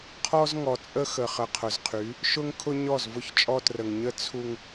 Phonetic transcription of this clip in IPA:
qʰɔ˦zŋɔ˨t͡sʼə˦ xə˨χə˨qʰʊ˨zqʰy˨˦ | ʃʊ˦ŋkʰʊ˦ ɲɔ˦˨zvʊ˦çt͡ʃʼɔ˦trə˨ŋ ɲə˦ t͡sʰu˦ŋ

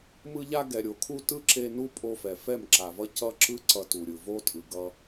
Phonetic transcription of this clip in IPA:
mɯ˧ʎa˧ ɡɛ˨ɾʲo˨kʰu˧ tɯ˦˨ǁe˧ nu˦pʼo˧fɛ˨ fɛ˦˨mǁa˨vʌ˦ cʌ˦ ǁɯ˦ ǀʌ˧tu˨ɾʲɯ˨vo˦ tʼɯ˨ɡʌ˧

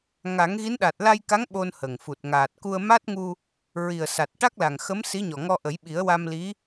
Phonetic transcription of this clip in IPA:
ŋa˨˩˦ŋɣi˧˥nɗa˨˩t̚ la˧jka˧˥ŋ ɓo˧nhə˨˩ŋfu˨˩t̚ ŋaː˨˩t̚ku˧ə̯ ma˦˥t̚ŋu˧ | ɹi˨˩ə̯sa˨˩t̚ ʈa˦˥k̚la˨˩ŋxə˧˥m si˧˥ɲɔ˨˩ŋɔ˧ ʔə˨˩˦jɓi˨˩˦ə̯wa˧mli˧˥

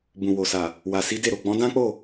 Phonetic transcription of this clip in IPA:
bũ˨wo˨sa˨ | wa˨si˨˦de˦˨ɾo˨ ɡ͡bɔ̃˨˦dã˦k͡po˦˨

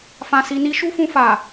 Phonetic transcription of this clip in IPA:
fã˧si˧ni˦ ʃu˦fũ˧fa˨

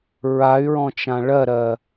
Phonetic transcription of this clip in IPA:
ɹay̯ɹɔ̃t͡ʃã ɭɜɾɜ

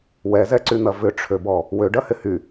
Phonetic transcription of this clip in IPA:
wɛzɛǀyn̪ɐ vʏʈ͡ʂʰøbɔ | wøɖɐhɪ hy

